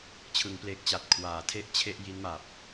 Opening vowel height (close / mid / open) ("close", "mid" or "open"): close